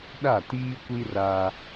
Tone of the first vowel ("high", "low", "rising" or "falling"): falling